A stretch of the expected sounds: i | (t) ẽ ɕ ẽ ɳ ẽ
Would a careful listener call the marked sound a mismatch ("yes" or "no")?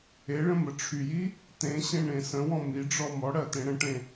no